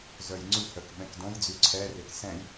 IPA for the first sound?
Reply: z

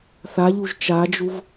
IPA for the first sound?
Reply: θ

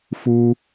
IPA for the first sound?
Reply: f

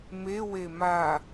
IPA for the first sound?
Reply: m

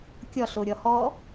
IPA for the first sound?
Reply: kʲ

